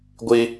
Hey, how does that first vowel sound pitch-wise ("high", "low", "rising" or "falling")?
high